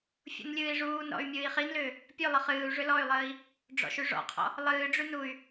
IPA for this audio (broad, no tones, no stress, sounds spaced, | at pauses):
fʲ ṵ n lʲ ɨː i̯ ʐ uː n ɾ ɔ̰ y̯ mʲ ɨː i̯ χ i n l ʏː | pʲ ʉ lˠ ə χ ɨː u̯ ʐ ʏ l ɔ y̯ lˠ əː i̯ | ɖ͡ʐ ɔ̰ ʃ ʉ ʐ ɔ̰ qʰ ɔ̰ | lˠ ɨː ɖ͡ʐ ʉ n u y̯